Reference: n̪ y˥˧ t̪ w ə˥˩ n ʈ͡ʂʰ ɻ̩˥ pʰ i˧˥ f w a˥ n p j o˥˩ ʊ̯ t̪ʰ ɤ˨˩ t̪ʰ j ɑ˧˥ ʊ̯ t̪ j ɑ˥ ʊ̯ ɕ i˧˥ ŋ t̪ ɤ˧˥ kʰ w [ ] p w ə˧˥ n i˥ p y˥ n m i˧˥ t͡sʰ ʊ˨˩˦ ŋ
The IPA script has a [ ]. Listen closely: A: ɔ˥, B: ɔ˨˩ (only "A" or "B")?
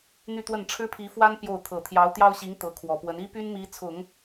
B